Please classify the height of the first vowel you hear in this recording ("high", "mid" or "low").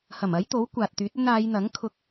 low